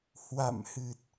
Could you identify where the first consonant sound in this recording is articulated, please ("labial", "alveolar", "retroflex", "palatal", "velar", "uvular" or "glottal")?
glottal